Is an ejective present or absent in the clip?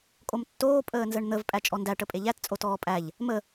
present